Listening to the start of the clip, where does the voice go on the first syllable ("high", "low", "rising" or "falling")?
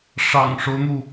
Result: low